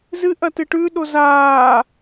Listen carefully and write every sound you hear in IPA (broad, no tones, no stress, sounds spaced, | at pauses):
z ɨ ʔ ɐ t ɨ ʈ ʉ ɗ o z aː